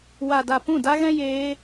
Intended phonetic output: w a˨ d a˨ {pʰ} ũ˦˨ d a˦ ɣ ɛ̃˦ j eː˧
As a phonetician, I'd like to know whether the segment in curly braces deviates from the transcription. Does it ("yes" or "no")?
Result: yes